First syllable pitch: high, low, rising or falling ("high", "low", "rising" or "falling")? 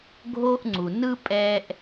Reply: high